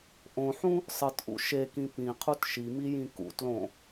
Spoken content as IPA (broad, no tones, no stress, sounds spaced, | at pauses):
ʔ õ ħ ũ | sˤ ɨ t ʔ ṵ ʃ e k ĩ p ĩ qʰ u t ʃ i m i j ĩ k ṵ t l õ